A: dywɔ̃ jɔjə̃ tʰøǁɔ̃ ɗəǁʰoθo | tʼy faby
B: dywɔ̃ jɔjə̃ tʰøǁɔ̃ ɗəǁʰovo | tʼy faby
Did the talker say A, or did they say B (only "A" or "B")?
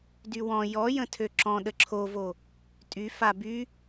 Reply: B